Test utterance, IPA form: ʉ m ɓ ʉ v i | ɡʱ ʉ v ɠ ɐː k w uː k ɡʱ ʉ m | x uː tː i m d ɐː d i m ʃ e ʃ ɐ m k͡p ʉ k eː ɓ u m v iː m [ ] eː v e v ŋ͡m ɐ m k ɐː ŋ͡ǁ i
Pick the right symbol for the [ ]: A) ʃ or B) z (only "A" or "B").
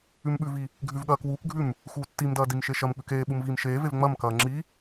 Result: A